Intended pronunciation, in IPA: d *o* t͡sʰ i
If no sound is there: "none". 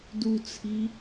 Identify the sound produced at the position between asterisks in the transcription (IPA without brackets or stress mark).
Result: u